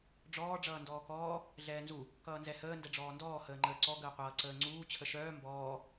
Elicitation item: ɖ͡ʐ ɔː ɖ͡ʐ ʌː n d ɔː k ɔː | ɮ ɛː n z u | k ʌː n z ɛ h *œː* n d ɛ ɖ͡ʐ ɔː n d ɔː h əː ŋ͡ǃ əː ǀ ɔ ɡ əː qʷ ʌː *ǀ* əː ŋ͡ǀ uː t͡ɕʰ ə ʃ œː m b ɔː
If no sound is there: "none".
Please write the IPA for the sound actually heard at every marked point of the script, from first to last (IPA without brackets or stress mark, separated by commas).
əː, ǀ